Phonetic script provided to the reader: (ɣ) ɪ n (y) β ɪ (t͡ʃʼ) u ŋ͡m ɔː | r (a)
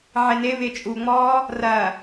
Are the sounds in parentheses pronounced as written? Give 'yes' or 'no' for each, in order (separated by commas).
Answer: no, no, yes, no